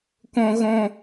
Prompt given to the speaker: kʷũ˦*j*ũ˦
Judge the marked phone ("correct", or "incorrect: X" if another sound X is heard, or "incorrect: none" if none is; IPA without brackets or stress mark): incorrect: ɣ